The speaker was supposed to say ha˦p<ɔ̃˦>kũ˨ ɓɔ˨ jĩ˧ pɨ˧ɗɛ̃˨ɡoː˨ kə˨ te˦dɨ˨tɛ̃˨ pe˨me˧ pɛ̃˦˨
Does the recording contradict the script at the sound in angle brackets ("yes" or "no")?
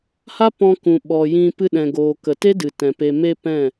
yes